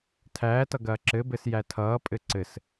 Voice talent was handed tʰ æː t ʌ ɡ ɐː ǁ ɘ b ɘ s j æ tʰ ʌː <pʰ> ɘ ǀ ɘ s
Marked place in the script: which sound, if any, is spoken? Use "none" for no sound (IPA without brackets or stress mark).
pʼ